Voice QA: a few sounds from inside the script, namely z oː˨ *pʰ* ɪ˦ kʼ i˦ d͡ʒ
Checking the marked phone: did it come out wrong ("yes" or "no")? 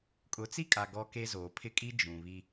no